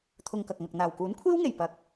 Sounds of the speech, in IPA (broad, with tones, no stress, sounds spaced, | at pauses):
t̪ʰ ʊ˧ ŋ k ɐ˨ k̚ ŋ ɐ˨ k̚ n̪ aː˨˩ w k uː˨˥ n kʷʰ iː˥ w ŋ e˨˩ j p ɐ˨ k̚